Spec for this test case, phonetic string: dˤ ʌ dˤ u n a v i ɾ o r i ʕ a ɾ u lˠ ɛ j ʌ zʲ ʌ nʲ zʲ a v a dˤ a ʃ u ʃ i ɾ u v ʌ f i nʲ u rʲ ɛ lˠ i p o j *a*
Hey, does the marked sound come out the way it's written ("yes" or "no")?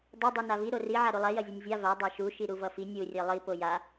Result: yes